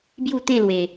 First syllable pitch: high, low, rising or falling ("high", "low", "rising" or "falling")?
falling